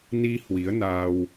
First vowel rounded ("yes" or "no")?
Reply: no